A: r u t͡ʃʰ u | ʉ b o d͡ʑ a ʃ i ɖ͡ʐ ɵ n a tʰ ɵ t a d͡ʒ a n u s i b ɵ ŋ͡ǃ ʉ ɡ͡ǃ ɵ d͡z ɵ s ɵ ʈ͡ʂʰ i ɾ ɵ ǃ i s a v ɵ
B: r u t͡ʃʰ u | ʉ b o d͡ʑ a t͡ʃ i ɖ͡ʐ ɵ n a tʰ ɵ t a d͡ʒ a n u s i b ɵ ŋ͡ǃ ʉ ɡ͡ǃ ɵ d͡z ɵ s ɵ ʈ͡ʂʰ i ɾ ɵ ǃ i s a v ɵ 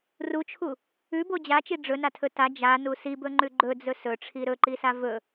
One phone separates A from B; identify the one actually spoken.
B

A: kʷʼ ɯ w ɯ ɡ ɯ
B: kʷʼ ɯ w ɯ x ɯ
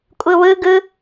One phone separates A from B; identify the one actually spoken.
A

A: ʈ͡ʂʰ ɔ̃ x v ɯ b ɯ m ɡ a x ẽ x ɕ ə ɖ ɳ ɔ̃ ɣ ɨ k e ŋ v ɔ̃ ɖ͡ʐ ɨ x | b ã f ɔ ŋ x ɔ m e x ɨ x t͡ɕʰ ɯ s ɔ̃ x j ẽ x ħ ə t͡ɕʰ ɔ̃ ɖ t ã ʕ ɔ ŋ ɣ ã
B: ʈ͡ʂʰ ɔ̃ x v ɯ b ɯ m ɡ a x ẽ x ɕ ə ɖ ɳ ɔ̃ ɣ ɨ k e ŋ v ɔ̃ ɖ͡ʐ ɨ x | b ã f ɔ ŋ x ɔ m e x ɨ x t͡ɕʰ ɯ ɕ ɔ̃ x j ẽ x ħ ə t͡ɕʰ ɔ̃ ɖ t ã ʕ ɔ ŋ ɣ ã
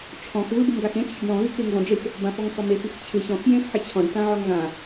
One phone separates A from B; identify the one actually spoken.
B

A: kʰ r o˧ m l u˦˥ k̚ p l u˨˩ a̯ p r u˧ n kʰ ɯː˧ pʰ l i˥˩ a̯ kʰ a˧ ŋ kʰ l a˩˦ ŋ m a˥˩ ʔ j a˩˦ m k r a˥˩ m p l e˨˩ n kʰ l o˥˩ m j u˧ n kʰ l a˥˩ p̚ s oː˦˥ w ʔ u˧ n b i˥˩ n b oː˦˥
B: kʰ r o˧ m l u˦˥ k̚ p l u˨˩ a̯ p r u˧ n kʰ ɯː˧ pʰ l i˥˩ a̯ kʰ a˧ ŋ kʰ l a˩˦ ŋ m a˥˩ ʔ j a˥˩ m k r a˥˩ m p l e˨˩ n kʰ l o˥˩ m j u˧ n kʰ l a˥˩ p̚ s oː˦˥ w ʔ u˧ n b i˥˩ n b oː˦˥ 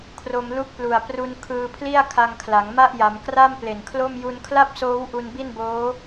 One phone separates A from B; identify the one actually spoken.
A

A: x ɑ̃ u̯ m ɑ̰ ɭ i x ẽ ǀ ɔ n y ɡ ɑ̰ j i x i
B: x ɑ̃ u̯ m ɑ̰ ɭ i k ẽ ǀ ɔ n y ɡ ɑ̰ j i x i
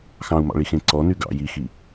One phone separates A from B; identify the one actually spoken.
A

